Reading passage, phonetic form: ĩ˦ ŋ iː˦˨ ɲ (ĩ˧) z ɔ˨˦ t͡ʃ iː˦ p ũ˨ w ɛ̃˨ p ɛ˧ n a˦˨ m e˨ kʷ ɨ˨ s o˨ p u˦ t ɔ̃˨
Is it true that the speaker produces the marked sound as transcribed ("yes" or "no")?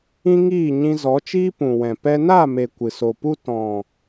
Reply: yes